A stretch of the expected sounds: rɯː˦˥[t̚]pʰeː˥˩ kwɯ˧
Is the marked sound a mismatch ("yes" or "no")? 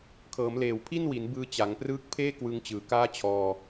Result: yes